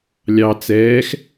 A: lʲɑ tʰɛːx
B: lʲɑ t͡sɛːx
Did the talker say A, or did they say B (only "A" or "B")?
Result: B